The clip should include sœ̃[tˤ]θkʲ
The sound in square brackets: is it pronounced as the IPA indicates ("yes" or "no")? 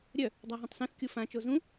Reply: no